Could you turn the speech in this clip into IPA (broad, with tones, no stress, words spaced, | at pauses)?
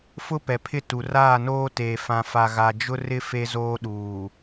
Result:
fʊ˦pɛ˨pʰɪ˦˨tu˨ raː˦˨noː˦teː˨fã˨ fa˨ɣa˨ d͡ʒʊ˦rɪ˦ fe˦zoː˦ɗuː˨